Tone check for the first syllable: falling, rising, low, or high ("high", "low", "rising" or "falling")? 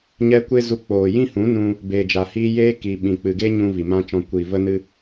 high